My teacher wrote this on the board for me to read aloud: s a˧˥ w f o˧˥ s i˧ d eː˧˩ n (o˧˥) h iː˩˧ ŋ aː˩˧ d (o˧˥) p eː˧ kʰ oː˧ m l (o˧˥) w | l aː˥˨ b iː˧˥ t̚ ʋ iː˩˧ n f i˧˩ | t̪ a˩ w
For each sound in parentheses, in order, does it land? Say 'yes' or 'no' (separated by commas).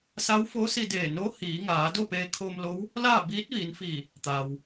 yes, no, yes